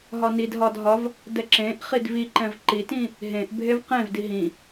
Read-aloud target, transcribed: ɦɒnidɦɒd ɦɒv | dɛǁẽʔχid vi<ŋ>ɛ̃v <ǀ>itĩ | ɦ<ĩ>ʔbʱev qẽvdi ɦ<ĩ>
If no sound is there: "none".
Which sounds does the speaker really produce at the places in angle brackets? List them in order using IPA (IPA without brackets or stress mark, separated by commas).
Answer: ǃ, ǃ, ẽ, ĩ